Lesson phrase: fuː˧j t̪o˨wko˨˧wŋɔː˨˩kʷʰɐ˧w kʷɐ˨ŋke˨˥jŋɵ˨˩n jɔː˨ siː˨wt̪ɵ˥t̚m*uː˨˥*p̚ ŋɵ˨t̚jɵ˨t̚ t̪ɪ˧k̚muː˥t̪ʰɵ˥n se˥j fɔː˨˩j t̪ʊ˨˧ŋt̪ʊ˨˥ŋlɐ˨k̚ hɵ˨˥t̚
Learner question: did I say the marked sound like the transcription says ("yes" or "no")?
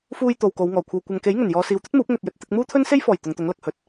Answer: yes